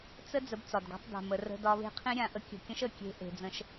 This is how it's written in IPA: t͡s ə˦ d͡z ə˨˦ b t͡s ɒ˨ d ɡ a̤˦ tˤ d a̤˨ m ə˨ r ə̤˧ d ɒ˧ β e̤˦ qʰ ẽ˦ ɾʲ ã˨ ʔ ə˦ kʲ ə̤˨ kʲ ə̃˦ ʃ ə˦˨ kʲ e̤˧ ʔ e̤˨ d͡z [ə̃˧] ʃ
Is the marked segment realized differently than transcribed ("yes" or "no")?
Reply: no